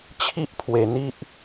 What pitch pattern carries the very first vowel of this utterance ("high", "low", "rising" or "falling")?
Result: high